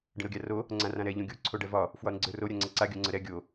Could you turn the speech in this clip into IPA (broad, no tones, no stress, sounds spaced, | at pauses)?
ɖ ə̃ ɾ o ɡʲ a r o | ŋ͡ǀ ã r ã ɾ ɛ ʎ õ ɡʲ o ǀʰ o ɖ ɛ v ɒ | f w ɒ ɾ ə̃ ɡ͡ǀ ə˞ r o ɾʲ a ŋ͡ǀ ɛ ǀ a ɡʲ o ŋ͡ǀ ə ɾ ɛ ɡʲ o